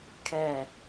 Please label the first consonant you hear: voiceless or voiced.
voiceless